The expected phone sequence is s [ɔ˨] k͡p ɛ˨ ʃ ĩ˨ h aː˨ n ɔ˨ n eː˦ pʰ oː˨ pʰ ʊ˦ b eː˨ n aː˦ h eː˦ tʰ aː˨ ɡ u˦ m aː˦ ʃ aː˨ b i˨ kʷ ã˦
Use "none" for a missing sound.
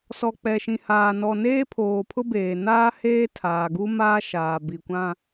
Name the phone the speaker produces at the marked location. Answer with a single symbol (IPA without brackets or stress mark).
ɔ˨